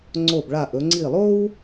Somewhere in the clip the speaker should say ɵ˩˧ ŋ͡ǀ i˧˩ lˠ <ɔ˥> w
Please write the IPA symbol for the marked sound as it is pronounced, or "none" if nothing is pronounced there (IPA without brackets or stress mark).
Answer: o˥